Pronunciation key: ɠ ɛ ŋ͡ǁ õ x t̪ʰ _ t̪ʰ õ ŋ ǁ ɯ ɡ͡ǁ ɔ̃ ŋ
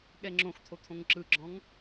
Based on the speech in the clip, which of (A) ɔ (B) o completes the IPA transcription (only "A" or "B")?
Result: B